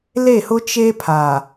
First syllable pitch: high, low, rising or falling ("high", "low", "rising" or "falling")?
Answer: falling